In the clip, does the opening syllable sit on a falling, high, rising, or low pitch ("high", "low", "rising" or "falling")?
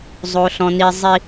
high